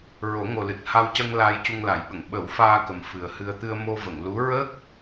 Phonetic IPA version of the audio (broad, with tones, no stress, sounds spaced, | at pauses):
ɹ o˨˩˦ ŋ o˨˩ l ɨ˨˩ t̚ h a˧ w c ə˧ ŋ l a˧ j c u˧ ŋ l a˨˩˦ j ɓ ə˨˩˨ ŋ ɓ ə˨˩˦ w f aː˧ k ə˨˩ m f ɨ˨˩ ə̯ h ɨ˧ ə̯ t̪ ɨ˧ ə̯ m o˧ v ə˨˩˨ ŋ l u˧˥ ɹ əː˦˥ k̚